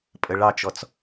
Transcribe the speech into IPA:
pʼəɭɑt͡ʃɔt͡s

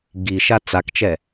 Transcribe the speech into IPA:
ɡiʃa t͡sakt͡ʃɛ

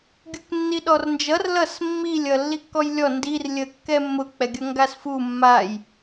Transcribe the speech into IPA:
ɡʲuknːiɗɔrnd͡ʒʌr lʌs mːilʲ ʌlːikːɔjlʲɔ ndir lʲəkːɛmːʊ k͡pɛɡʲʌŋɡasfu mːaj

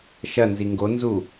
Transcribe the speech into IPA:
ʃɐnzi ŋɡonzu

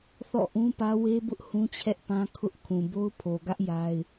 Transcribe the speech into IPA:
θɔ̰˦˨ ʔũ˦pä˦ we˦bʊ˦ʔ hũ˦t͡ɕʰɛ˦ʔpã˦ kʰʊ˦ʔ kʰũ˨bo˦ʊ̯ pʰo˨ɡä˦ʔ ja˦ɪ̯

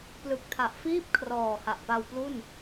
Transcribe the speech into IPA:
plɯ˨˩k̚tʰa˨˩ʔ fiː˥˩p̚ kʰrɔː˨˩ha˨˩ʔpa˧w plu˥˩n

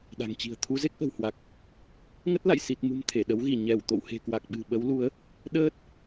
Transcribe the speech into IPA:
ɗa̤˨˩ŋt͡ɕi̤˨˩ə̯ t̪ʰu˨˦ze˦˥k̚ʔə̤˨˩whwa˨˩k̚ | ŋə˦˥t̚la̰˧˨j si˨˩t̚mṳ˨˩m t̪ʰe˧˩ɗə˨˦wɣi˧˩ ɲɛ˧˩w t̪o̰˧˨whe̤˨˩kwa˨˩k̚ɓɨ̤˨˩ ɓə˨˦w lu˨˦ə̯ | ɗəː˦˥t̚

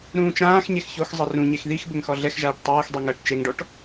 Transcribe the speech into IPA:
ɾũːt͡ʃãːxɲex çoxzˤɘ rũɲex ðix bɘŋxɔɮɛxʒaːʈ tˤɘːxdˤi ŋɐːʈt͡ʃeŋɖɔʈ

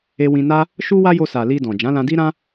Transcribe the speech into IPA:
e˧wĩ˧na˦ | ʃu˦ wa˦jo˧sa˨ li˧dɔ̃˨ d͡ʒã˨˦lã˧di˦ɾã˦

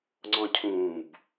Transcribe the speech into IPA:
ŋ͡ǀɔ̃cʰũːb

